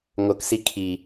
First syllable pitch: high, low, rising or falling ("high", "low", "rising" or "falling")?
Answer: rising